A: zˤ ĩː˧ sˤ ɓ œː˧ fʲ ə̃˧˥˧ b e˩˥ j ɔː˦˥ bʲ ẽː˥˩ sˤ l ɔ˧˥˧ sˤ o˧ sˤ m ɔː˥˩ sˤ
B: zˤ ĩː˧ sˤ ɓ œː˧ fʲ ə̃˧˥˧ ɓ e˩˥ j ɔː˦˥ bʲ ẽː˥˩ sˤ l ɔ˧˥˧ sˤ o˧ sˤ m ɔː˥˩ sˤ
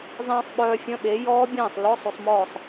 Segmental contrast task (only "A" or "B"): B